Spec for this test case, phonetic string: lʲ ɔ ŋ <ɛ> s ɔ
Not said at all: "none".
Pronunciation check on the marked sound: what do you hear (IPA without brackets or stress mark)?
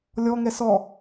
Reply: ɛ